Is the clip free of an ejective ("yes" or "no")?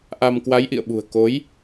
yes